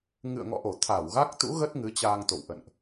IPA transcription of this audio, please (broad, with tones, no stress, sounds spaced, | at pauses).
ŋ ɨ̰˧˨ ə̯ ŋ ɔ̰˧˨ ʔ o˧˩ t̪ʰ a˧˩ w ɣ a˦˥ k̚ t̪ ṵ˧˥ ɣ ə˦˥ t̚ ŋ ɨ˨˦ t͡ɕ aː˧ ŋ t̪ o̰˧˨ w ʔ ə̰˧˨ n ʔ